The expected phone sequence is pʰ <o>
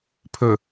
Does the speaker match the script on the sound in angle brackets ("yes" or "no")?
no